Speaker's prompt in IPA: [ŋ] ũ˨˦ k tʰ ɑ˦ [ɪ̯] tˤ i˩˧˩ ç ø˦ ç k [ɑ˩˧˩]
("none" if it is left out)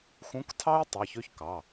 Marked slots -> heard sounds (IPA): x, ɪ̯, ɑ˩˧˩

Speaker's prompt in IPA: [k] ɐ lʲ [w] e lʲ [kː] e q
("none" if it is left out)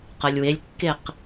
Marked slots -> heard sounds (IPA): q, w, kː

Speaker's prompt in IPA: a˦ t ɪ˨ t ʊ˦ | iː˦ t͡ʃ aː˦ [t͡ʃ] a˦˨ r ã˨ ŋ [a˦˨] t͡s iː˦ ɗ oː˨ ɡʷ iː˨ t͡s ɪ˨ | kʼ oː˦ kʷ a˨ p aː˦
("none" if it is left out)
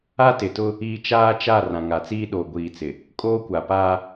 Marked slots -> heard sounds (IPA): t͡ʃ, a˨

